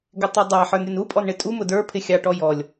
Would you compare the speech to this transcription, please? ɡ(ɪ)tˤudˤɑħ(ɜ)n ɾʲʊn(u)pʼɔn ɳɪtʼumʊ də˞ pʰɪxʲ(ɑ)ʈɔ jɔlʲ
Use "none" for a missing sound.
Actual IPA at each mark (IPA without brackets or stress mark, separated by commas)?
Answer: ɪ, ə˞, u, ɑ